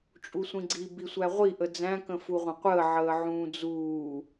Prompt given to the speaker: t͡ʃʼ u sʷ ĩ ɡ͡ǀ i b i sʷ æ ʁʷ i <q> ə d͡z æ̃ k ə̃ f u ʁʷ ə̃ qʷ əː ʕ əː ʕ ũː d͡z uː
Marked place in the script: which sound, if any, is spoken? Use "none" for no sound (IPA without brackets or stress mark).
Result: ʔ